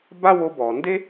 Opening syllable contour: high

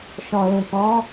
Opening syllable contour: low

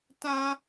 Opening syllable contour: high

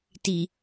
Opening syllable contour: low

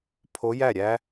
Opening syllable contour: rising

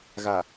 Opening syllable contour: low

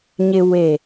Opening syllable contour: low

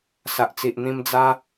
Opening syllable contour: low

